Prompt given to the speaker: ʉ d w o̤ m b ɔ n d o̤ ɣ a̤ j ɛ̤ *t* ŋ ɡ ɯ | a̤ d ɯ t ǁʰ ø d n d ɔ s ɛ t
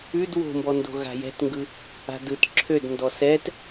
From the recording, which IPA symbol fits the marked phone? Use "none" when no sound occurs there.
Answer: t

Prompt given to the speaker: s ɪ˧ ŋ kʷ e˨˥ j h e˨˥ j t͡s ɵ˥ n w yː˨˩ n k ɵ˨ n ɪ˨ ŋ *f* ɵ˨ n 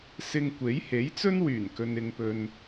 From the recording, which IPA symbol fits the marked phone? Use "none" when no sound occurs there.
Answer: p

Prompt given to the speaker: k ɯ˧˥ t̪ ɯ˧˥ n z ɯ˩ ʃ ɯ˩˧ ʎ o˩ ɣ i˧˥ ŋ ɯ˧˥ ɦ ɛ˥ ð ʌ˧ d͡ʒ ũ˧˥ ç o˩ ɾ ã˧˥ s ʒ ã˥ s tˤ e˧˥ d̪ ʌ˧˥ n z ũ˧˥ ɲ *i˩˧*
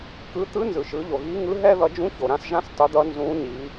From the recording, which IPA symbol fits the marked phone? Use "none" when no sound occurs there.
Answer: i˩˧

